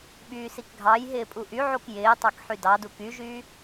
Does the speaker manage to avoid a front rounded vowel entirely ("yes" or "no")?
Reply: no